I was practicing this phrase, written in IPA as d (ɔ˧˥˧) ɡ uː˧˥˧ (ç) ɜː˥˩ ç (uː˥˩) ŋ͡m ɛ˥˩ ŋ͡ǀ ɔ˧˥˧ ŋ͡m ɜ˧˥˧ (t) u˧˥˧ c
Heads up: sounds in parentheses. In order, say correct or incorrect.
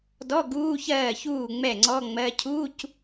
correct, correct, correct, incorrect: cʰ

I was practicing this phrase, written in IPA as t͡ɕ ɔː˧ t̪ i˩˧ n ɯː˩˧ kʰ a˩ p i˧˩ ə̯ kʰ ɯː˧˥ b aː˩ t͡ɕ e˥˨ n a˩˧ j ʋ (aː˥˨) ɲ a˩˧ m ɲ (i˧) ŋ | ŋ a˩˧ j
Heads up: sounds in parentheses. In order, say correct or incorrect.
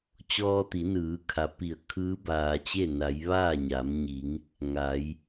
correct, incorrect: i˩˧

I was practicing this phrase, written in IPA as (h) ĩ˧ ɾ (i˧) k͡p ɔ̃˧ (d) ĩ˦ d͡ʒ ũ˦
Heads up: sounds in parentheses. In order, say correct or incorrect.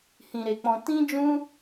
correct, incorrect: e˧, incorrect: t

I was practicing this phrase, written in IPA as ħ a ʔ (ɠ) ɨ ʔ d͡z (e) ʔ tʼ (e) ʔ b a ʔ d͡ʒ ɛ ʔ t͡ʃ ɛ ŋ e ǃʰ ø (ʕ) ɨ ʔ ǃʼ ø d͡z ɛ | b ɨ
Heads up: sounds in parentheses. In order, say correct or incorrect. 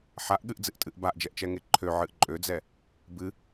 correct, incorrect: ɨ, incorrect: ɨ, correct

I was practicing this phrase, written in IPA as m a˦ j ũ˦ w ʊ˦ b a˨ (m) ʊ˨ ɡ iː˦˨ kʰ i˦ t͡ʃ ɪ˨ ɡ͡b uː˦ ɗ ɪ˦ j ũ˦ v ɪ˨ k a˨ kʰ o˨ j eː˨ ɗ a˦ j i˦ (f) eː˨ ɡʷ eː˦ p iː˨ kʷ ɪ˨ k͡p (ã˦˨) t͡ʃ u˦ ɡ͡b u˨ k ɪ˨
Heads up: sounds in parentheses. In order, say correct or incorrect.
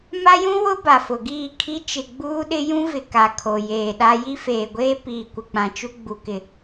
incorrect: f, correct, incorrect: ã˨

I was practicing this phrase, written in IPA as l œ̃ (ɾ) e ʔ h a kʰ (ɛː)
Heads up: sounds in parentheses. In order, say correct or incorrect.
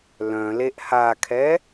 incorrect: l, incorrect: ɛ

